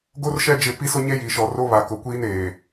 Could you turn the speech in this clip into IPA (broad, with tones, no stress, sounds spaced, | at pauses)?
ɡ o˦ r ʃ ɛ˦ d͡ʒ ɪ˦˨ p i˦ s ʊ˦ ɲ e˦ j i˨ ʃ ɔ˨ r o˦ β a˨ k ʊ˨ kʷ iː˦ n eː˨